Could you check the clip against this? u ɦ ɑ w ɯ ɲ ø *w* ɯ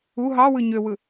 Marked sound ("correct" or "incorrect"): correct